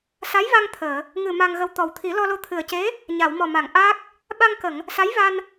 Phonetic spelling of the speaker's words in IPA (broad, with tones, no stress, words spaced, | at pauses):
sa˧˥jva˧ŋ t̪ʰəː˨˩˨ | ŋɨ˨˩ ma˧ŋɣə˧w t̪ɔ˨˩wt̪ʰi˨˩˦ lɔ˧lo˧ t̪ʰɨ˨˩ə̯ce˧˥ | ɲa˨˩˨wmɔ˨˩ma˨˩˨ŋ ʔa˦˥k̚ | ɓa˧ŋkə˨˩˨ŋ | sa˧˥jva˧n